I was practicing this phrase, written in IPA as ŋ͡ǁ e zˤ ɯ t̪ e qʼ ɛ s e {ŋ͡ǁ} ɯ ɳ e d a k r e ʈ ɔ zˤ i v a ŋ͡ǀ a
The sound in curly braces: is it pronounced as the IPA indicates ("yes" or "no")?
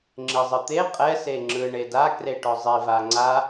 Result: yes